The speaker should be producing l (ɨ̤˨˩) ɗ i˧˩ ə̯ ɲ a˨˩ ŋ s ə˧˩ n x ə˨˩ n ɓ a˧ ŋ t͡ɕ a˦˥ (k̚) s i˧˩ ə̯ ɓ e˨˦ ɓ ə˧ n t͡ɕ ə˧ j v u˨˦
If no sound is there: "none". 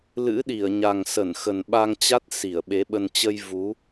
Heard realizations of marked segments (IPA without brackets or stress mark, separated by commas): ɨ̰˧˥, t̚